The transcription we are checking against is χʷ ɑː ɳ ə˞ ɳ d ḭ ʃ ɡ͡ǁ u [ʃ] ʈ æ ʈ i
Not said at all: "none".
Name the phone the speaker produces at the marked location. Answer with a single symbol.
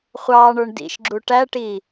none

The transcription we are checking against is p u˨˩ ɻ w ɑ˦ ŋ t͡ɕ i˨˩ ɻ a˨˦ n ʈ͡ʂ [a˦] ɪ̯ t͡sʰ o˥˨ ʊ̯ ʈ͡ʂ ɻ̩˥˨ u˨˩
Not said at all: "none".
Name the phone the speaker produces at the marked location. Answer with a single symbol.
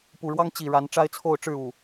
a˦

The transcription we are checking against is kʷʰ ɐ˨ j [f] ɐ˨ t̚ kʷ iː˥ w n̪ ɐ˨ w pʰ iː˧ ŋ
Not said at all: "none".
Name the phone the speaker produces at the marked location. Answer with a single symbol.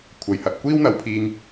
h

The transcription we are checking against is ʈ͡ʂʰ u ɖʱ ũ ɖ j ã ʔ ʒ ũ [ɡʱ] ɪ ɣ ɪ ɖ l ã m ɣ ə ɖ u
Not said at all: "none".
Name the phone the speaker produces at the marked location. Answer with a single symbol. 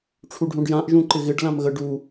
ǃ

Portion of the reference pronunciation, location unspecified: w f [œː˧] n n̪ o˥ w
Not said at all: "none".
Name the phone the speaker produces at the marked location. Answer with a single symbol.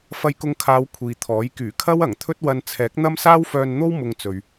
œː˧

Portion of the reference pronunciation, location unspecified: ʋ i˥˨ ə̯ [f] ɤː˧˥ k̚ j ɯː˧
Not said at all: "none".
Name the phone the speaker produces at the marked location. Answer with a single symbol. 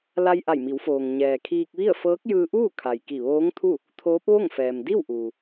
f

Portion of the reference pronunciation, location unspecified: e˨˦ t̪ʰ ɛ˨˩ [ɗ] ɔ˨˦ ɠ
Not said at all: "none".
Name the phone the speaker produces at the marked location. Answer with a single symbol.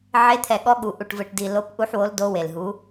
ɠ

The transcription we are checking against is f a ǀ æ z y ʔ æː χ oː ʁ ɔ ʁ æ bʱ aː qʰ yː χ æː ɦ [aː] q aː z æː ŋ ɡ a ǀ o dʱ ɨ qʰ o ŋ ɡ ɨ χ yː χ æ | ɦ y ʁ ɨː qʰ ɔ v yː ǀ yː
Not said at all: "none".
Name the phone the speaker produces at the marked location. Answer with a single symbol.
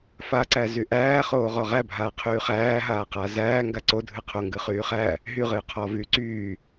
aː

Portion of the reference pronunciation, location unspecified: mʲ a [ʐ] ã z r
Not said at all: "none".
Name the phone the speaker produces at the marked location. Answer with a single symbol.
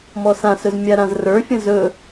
ɾ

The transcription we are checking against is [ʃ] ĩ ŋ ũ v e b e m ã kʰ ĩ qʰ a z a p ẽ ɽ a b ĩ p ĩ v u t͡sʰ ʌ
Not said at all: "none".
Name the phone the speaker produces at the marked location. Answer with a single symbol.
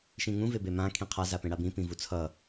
ʃ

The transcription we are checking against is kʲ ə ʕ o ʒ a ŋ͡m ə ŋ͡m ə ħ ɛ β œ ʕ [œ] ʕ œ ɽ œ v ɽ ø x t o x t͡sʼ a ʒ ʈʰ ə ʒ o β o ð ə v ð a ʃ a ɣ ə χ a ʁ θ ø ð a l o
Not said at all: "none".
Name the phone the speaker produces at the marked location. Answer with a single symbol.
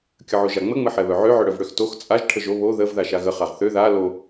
ø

